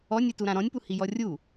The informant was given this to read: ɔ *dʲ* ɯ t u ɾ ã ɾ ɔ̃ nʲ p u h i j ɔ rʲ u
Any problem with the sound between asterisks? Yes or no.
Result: yes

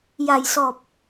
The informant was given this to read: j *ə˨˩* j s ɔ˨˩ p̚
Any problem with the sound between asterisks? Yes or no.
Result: yes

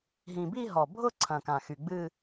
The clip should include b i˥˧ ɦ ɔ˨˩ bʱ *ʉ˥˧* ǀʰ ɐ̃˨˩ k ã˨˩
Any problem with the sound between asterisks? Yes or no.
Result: yes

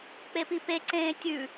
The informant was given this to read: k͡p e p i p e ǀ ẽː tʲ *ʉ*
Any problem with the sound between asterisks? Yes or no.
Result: no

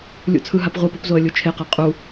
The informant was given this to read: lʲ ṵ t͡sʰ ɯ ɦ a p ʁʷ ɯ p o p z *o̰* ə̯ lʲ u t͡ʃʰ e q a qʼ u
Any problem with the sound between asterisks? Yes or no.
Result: yes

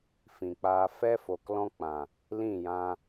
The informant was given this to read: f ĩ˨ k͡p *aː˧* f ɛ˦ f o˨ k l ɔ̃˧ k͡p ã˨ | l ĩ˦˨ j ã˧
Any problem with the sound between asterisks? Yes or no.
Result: no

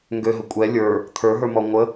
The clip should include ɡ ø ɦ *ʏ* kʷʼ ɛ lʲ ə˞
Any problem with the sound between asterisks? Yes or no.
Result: yes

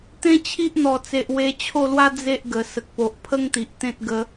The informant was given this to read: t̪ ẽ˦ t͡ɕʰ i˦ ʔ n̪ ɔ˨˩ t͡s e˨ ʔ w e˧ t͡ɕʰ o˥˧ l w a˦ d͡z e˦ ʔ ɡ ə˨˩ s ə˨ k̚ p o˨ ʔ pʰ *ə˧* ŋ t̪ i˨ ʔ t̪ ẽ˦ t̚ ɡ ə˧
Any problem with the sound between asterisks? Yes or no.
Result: yes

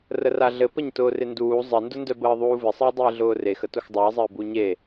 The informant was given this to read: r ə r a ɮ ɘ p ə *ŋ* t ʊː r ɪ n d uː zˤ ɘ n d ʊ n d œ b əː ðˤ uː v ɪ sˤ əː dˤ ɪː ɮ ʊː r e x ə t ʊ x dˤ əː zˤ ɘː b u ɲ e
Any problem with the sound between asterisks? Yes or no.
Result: yes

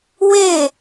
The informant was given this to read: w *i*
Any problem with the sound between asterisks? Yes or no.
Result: yes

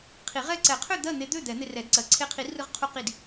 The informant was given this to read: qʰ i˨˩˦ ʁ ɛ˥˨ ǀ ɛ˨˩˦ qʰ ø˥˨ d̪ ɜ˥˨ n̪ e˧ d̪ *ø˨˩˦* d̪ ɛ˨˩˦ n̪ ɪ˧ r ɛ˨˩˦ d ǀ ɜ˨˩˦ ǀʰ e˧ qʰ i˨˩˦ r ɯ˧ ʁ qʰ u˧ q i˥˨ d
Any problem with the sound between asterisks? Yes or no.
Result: yes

